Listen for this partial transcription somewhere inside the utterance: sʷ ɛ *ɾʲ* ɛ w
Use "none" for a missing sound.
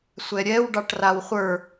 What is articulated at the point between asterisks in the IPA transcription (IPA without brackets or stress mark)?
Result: ɾʲ